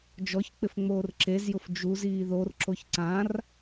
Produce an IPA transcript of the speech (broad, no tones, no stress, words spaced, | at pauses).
d͡ʒɔçk͡pɪf ŋ͡moːrǁezjʊf d͡ʒuz iːðorǁoç ǀãr